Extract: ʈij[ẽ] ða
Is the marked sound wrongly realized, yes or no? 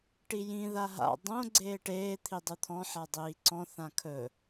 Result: yes